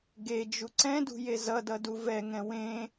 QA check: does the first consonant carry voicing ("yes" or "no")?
yes